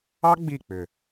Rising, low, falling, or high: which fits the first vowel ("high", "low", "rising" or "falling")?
high